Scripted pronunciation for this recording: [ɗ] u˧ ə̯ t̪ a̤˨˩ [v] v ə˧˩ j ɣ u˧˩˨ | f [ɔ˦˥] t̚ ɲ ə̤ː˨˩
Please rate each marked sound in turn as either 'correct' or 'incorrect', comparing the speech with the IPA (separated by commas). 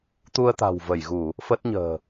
incorrect, incorrect, incorrect